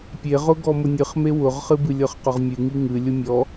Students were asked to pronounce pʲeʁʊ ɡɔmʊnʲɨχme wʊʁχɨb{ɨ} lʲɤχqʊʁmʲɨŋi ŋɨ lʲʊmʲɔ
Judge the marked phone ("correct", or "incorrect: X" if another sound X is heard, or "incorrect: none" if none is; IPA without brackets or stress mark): correct